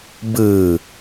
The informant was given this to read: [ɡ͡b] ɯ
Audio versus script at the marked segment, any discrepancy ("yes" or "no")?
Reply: yes